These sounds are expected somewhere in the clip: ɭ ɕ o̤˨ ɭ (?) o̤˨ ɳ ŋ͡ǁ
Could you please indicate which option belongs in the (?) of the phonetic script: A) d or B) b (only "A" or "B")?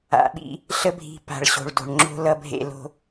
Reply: A